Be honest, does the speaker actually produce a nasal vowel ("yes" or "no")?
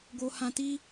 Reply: yes